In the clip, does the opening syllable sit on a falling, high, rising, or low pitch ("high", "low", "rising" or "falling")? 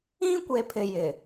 high